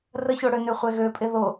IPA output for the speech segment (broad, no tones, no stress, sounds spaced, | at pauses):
r ə ç o ɽ ø n ø χʷ ɛ ɣ ø pʼ e ð o